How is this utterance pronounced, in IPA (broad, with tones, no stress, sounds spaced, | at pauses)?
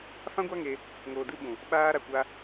f ã˦ ɡʷ a˦ ŋ e˧ | ŋ oː˨ d ɨ˧ ɓ ũ˨ | ɓ aː˧ ɾ a˨ kʷ a˧